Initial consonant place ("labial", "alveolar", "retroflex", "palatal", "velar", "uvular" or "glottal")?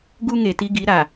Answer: velar